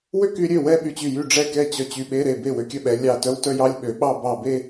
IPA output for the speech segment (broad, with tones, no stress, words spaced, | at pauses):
wø˥˧ky˨˦ɾʲø˥˩ wɛ˥˧ɓy˧˩t͡ɕy˧˩jy˥˩ ɖ͡ʐɛ˥˩kɛ˥˩t͡ɕœ˧˩ t͡ɕy˧˩ɓe˧˥˧ɾe˥˩ be˥˩wø˨˦kʲœ˥˩ɓɛ˨˦ lʲɑ˧˩ tœ˧˥˧wtœ˥˧jɑ˧˥˧lʲ ɓø˨˦ɓɑ˥˧ bɑ˧˩be˥˧